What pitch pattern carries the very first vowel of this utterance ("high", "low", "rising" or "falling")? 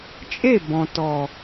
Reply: falling